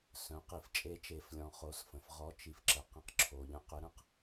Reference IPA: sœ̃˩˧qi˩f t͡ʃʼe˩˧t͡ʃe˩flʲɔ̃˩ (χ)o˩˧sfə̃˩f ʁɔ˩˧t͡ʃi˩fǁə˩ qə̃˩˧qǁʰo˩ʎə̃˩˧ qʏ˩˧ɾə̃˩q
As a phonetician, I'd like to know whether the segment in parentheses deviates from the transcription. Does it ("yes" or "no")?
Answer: no